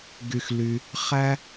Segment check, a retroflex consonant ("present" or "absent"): absent